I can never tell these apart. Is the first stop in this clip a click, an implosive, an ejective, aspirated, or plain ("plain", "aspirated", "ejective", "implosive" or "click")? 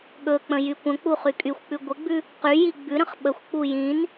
implosive